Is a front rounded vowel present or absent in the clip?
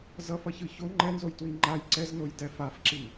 absent